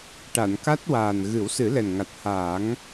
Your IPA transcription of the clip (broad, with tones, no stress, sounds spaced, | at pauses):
ʈ a˨˩˨ n k a˦˥ t̚ w aː˨˩ n ɣ ɨ˨˩˦ w s ɨ˨˩˦ l ɛ˨˩ n ŋ a˨˩ t̚ h aː˨˩˦ ŋ